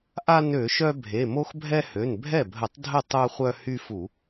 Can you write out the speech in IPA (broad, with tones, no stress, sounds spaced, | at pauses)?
ʔ a˦ n ø˧˩˧ ʃ œ˦ bʱ e˩˧˩ m o˦ x bʱ ɛ˦ h ø˩˧˩ n bʱ ɛ˥˩ bʱ ə˧˩˧ tˤ dʱ ə˥˩ tˤ œ˦ χʷ œ˦ h y˦ f u˧˩˧